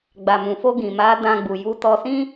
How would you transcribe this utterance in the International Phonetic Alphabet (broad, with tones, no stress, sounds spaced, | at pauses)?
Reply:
ɡ͡b a˨ m ũ˨ f o˧ ɡ ĩ˨ m a˨˦ d ã˧ ɡ͡b u˨ j u˨˦ t ɔ˧ s ĩ˦